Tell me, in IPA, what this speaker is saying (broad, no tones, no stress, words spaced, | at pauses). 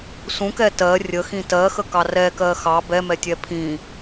sũkɛ tɜ rʲəxĩ tɜxəkɑ rɛkɜ xɑ bɛmɛtʲɛ pʰĩ